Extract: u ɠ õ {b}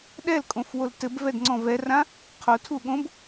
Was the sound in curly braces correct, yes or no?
yes